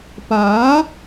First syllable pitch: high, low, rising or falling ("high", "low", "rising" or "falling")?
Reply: rising